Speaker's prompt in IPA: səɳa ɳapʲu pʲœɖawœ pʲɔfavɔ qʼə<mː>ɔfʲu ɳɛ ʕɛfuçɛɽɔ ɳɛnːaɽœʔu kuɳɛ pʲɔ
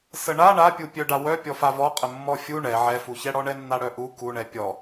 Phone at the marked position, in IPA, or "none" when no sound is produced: mː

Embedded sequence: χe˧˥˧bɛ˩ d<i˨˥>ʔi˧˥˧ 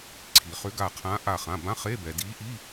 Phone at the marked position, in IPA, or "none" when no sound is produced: i˨˥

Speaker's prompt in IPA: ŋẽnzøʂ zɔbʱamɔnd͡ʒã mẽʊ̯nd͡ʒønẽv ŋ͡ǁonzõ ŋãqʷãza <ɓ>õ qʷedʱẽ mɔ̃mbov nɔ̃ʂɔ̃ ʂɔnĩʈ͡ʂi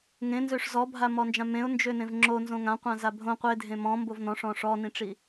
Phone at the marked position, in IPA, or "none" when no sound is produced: bʱ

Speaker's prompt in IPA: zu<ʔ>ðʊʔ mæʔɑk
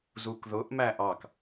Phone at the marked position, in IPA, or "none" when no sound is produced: k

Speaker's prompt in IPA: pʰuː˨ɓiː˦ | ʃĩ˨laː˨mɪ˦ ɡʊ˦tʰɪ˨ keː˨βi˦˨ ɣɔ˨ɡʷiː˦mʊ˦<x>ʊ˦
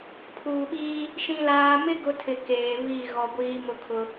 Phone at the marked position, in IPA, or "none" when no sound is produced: kʰ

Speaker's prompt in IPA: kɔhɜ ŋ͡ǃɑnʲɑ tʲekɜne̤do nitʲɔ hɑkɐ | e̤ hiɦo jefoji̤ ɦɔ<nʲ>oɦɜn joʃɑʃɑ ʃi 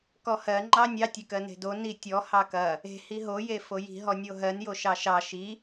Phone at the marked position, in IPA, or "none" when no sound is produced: nʲ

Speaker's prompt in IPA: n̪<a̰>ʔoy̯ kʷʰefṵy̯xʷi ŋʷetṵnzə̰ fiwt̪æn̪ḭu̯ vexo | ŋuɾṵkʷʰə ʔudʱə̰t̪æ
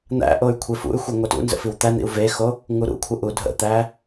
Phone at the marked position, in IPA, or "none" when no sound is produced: æ̰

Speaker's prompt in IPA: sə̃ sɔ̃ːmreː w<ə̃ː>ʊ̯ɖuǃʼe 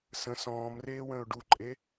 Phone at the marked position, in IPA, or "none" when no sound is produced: ə̃ː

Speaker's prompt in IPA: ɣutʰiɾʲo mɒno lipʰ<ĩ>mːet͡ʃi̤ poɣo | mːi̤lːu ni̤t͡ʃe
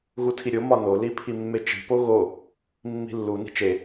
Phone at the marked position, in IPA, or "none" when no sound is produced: i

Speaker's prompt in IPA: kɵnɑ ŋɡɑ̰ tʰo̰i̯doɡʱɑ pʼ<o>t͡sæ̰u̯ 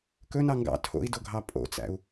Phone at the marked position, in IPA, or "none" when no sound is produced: o̰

